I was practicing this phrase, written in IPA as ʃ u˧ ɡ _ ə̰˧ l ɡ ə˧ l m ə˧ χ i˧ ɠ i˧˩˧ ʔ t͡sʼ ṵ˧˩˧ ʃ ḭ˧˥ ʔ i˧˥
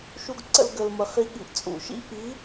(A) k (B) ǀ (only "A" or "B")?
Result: B